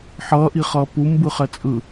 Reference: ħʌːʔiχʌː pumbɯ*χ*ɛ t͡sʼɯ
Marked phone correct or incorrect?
correct